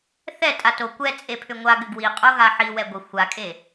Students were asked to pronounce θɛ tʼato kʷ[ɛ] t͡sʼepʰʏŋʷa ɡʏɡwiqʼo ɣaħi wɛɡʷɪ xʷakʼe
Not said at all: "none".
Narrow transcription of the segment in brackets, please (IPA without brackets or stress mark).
ɛ